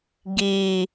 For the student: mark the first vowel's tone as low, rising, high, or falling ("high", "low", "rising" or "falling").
low